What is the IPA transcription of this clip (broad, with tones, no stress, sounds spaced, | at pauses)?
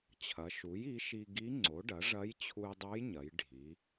t͡ɕʰ ɐ˩˧ ʃ u˩˥ j i˩˥ ʃ i˧ ɡ i˧˥ ŋ͡ǀ o˩˥ ɖ ɐ˩˥ ʐ ɐ˧˥ j t͡ɕʰ u˧ j dˤ o˧˥ j ɲ ɐ˩˧ j ɖʱ i˩˧